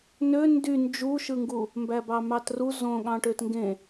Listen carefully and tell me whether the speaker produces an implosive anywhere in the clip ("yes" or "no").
yes